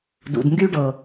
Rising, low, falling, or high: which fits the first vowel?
low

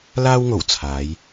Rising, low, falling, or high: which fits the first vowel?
high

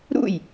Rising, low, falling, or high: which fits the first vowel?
falling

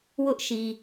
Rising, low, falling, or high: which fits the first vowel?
high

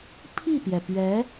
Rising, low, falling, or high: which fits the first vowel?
falling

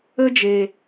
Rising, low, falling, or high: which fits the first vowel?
high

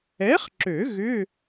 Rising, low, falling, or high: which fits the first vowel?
rising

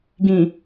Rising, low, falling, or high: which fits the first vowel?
low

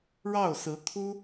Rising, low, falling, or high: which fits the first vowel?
falling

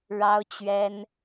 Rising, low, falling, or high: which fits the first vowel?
high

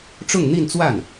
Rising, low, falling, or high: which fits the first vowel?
falling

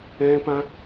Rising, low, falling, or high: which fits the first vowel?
high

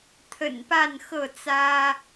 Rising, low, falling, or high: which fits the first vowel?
low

